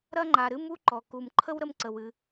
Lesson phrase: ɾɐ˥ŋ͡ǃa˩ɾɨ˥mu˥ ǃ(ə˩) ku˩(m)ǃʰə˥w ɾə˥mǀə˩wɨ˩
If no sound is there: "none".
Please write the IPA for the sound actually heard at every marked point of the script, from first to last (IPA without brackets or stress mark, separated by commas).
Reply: ɔ˩, m